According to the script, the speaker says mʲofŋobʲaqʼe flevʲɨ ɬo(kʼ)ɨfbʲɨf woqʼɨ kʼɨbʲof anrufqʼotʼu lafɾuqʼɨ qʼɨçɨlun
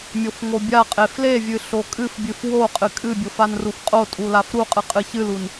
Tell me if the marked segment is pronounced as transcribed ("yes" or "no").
yes